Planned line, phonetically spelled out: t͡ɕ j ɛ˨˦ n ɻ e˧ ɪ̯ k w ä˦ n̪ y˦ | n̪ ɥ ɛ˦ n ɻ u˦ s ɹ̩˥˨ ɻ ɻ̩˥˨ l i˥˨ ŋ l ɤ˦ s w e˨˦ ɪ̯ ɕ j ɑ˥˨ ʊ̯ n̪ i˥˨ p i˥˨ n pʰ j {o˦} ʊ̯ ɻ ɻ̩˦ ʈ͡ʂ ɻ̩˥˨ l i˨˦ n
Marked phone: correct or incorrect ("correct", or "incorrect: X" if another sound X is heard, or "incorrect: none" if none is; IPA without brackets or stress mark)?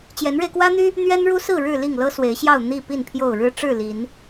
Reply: incorrect: o˥˨